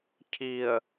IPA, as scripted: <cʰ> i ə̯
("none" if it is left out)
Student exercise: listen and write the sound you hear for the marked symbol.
cʰ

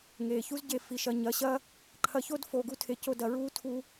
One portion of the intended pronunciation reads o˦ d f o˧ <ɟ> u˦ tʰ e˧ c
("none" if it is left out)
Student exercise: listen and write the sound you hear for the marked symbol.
ɡ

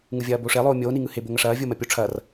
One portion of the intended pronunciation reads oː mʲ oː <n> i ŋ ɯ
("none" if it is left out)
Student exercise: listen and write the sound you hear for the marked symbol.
n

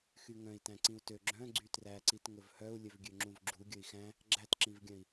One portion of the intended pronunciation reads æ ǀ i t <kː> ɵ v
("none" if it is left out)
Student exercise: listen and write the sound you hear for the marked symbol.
ŋ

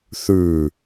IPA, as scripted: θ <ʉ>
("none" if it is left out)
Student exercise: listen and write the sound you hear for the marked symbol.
ʉ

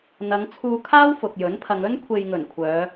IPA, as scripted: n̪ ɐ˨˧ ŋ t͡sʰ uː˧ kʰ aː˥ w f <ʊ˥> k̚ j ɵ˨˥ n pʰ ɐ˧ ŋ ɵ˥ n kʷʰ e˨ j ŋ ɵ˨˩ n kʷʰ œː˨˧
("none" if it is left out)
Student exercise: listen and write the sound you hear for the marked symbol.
ʊ˨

